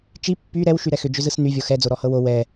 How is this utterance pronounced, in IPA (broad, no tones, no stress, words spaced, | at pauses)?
t͡ʃi pːy ɾɛw ʃyɾɛxʏ d͡ʒʏzɯsny vʲɔxɛ d͡zoɾɔhɤwo wɛ